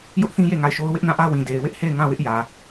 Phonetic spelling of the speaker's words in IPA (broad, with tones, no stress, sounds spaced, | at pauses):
j ʊ˦ ʔ θ ĩ˦ j e˦˨ ŋ a˦˨ ɪ̯ ʃ o˦ ʊ̯ w ɪ˦ ʔ n ã˦˨ ʔ ä˦ w ĩ˨ d e˨ ɪ̯ w ɪ˦ ʔ h e˦˨ ɪ̯ ŋ ã˦˨ w ɪ˦ ʔ j ä˨